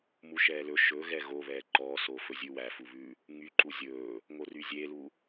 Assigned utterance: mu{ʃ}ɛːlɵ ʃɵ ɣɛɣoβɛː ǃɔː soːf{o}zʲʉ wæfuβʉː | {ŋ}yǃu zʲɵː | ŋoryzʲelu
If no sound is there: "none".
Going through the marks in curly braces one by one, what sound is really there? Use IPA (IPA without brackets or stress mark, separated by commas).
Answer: ʃ, ɵ, ŋ